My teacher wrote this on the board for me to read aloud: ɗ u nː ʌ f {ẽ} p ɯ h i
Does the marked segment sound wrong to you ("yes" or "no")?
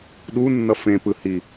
no